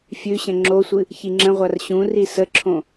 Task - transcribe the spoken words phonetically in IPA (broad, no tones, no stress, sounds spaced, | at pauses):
fʲ ʉ ɕ ə̃ ŋ͡ǁ o sʷ ɨ | ç i ŋ͡ǁ ə̃ ʁʷ a r ɕ ũ r i s ə ǁʰ õ